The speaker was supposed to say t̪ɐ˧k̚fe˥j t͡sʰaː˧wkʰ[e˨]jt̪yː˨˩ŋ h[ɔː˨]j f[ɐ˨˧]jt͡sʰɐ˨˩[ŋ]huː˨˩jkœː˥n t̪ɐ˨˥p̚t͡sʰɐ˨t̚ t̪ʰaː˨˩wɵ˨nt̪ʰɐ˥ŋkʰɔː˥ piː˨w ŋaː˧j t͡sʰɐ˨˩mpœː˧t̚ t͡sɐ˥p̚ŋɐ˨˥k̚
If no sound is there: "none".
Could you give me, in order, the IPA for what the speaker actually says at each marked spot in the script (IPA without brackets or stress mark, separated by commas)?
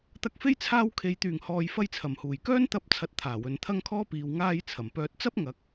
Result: e˨, ɔː˨, ɐ˧, m